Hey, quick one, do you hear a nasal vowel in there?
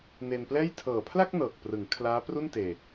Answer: no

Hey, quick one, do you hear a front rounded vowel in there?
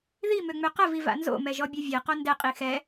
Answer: yes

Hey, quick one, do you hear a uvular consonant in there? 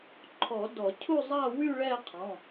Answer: yes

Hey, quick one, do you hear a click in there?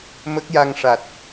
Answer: no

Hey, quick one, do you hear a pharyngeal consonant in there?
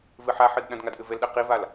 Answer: yes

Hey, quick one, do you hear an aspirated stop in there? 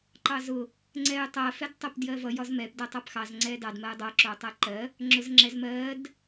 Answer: no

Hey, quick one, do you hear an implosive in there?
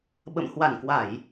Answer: yes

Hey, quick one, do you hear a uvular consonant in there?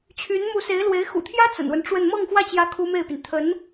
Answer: no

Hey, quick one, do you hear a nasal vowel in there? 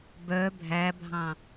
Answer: yes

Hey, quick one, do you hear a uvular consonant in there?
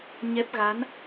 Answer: no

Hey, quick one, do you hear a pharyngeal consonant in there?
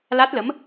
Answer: no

